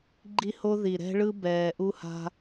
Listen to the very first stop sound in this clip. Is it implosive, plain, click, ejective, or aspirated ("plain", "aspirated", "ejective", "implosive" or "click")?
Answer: click